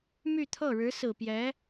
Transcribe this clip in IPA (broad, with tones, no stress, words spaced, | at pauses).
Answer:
my˥˧t̪ʰɤ˥˩ ɻɻ̩˧˥sɹ̩˨˩pjɛ˧˥